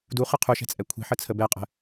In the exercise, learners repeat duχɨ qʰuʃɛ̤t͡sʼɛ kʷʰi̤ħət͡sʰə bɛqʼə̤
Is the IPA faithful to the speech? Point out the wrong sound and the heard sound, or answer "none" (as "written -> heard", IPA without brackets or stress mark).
none